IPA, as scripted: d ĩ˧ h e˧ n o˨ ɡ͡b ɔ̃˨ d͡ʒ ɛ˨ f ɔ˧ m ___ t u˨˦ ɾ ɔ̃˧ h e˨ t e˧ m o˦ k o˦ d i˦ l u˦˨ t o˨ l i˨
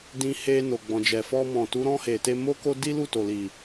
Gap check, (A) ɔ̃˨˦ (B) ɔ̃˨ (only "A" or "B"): B